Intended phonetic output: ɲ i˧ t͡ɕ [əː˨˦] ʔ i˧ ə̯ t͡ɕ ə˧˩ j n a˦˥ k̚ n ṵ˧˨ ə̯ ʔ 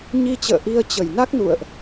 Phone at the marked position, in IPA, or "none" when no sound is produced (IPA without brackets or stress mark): ə̰ː˧˨